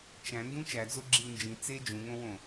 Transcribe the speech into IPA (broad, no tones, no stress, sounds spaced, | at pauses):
t͡ʃ æ̃ n d ũ t͡ʃ æ d͡z o ɡ͡ǁ i u̯ n d͡ʒ ĩ t͡s e d͡ʒ ũ ŋ õ w õ